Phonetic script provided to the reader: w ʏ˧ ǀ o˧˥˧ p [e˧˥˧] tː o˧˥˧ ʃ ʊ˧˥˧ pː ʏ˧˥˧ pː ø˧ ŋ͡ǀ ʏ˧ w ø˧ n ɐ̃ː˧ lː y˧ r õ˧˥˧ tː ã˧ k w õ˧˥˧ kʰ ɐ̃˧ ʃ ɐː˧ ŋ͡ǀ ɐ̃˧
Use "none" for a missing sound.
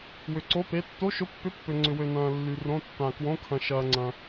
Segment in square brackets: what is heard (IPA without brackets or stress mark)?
e˧˥˧